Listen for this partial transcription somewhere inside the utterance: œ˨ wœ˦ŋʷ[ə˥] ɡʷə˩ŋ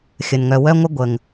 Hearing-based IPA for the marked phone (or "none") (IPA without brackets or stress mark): ə˦